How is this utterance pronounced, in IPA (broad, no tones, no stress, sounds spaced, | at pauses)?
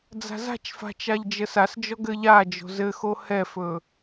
d͡z a̤ z a̤ t͡ʃ f a̤ t͡ʃ a ʎ d͡ʒ ə s a s d͡ʒ ɔ ɡ ɘ ʎ a d͡ʒ o̤ z ɘ x o h ɛ f ɵ